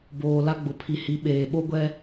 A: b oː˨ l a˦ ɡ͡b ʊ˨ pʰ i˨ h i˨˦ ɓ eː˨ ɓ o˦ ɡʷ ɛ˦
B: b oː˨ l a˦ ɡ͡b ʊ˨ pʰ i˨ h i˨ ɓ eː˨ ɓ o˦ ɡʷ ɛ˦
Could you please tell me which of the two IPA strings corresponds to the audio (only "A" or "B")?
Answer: A